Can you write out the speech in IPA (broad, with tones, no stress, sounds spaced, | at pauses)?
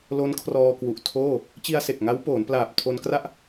l o˦˥ n kʰ r ɔː˧ k w u˨˩ ʔ tʰ oː˥˩ | t͡ɕ i˧ a̯ s e˨˩ k̚ ŋ a˦˥ w p oː˩˦ n p l aː˨˩ p̚ tʰ o˧ n k r a˥˩ ʔ